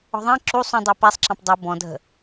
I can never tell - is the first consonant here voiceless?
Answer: no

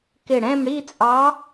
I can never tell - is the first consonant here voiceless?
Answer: yes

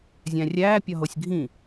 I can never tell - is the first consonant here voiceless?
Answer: no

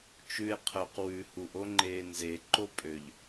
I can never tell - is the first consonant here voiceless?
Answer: yes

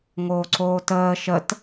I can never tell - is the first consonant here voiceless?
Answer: no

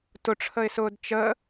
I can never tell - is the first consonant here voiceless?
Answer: yes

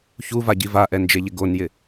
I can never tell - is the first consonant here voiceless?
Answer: yes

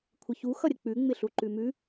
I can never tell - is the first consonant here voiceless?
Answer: yes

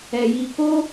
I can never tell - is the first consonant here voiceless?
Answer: no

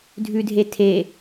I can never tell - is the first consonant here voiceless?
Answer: no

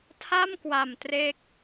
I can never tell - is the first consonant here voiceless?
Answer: yes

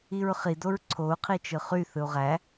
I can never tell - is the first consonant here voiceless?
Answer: no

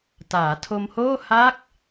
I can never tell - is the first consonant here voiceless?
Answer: yes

